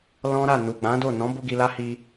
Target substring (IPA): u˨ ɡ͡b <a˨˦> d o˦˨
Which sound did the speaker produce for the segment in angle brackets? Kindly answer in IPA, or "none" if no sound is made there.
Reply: ã˨˦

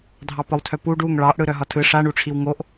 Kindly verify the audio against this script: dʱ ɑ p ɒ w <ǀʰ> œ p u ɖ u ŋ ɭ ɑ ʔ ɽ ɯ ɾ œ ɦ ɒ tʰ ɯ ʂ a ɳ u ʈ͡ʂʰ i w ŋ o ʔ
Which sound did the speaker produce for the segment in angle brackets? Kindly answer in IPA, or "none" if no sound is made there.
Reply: tʰ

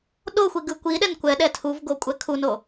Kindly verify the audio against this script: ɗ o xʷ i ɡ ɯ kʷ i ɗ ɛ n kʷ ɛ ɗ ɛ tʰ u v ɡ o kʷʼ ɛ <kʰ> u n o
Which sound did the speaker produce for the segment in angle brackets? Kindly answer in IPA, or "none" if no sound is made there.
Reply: kʰ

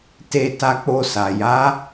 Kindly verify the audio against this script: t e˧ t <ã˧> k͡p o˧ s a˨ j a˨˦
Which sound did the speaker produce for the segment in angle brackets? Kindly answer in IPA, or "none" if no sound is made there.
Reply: a˧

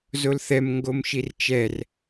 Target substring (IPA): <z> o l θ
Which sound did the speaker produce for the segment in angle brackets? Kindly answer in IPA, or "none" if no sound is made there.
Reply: z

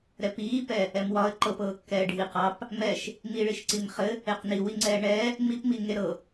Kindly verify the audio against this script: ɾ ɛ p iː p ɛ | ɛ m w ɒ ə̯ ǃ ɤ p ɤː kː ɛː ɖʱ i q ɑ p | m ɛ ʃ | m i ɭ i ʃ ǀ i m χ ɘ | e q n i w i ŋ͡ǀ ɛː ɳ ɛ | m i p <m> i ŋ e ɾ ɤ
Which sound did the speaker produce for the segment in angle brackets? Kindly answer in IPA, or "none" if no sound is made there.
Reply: m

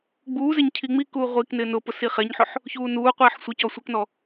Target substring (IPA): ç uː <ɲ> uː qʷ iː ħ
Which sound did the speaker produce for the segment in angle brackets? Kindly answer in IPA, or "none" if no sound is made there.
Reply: n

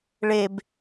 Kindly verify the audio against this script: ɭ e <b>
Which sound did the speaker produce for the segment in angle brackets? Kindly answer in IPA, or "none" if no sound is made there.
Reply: b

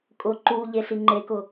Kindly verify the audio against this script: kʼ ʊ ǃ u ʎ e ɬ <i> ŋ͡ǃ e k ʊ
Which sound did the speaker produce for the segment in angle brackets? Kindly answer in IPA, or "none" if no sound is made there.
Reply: i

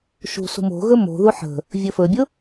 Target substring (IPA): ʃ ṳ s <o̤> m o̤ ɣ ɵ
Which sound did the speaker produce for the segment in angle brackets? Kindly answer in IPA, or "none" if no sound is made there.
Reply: ṳ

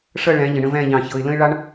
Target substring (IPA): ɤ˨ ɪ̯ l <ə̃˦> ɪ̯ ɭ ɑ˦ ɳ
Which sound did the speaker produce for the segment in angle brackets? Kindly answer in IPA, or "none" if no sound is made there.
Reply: ə̃˦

